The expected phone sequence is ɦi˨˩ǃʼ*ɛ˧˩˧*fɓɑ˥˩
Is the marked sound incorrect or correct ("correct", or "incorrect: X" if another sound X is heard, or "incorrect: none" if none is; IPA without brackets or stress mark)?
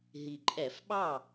correct